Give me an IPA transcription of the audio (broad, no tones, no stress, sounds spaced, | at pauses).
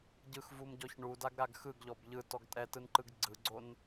ɟ ɯ x v u m ɟ ɔ ç ɳ u d a ɡ ɾ a ɡ x ɯ ɡ ʎ ɔ b ʎ ɯ t ɔ ɡ tʼ ɛ t ɯ n ǃ ɯ ɡ ɡ͡ǀ ɯ ɡ͡ǀ o n